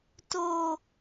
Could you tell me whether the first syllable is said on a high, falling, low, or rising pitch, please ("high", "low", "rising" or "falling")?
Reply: high